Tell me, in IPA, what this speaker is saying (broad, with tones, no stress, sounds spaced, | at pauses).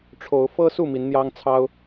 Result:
ʈ͡ʂʰ o˨˦ ʊ̯ f ɤ˦ s u˥˨ m i˨˦ n n̪ j ɑ˦ ŋ t͡sʰ ɑ˦ ʊ̯